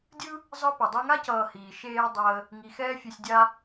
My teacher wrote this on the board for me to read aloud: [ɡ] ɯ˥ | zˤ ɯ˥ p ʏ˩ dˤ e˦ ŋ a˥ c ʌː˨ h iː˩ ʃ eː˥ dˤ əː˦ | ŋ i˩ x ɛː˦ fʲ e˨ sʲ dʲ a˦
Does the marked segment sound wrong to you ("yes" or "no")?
yes